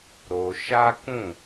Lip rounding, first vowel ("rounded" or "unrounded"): rounded